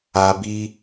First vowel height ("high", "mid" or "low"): low